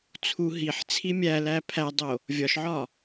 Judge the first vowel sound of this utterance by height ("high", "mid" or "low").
high